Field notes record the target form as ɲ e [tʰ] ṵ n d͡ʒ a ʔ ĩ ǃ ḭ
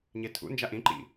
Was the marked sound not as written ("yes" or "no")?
no